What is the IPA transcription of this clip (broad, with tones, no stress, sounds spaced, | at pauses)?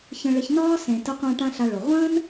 ç ə̃˧ ɭ ə˧ ç n ɒː˦ s ẽ˨ t ə˧ qʷ ã˧ ʈ ã˦ ɬ a˧ ɭ o˨ ʁʷ ə̃ː˦ n